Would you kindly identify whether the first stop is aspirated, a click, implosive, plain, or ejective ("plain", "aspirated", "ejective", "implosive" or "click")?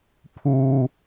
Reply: aspirated